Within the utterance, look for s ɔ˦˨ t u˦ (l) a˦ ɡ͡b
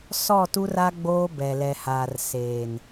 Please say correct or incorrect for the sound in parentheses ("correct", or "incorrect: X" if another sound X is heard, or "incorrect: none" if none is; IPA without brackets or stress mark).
incorrect: r